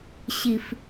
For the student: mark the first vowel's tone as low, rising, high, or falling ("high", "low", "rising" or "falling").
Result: low